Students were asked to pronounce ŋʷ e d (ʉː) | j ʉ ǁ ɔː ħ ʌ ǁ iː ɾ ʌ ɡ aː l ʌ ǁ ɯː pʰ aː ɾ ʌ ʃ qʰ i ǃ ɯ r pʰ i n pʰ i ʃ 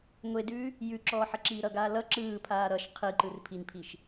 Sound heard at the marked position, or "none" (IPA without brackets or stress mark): ʉː